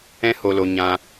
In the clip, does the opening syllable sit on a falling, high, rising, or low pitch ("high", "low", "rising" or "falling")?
high